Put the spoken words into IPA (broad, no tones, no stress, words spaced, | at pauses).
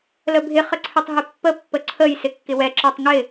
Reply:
ləbʱɪ χəǀʰɪtˤɦɪpːə pːəǀʰəj sɪkːɪwɛ ǁetˤŋɪ